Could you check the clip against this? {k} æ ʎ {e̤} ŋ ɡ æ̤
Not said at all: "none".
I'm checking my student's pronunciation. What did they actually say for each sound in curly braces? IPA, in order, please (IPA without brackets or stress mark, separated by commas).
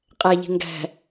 qʼ, e̤